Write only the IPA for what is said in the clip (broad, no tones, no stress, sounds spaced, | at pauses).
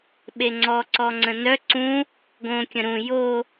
ɓ e ŋ͡ǀ ɔ ǀ ɔ ŋ͡ǀ ə̃ n œ ǀ ũ | ɡ õ kʲ ə̃ ɾ ũ j o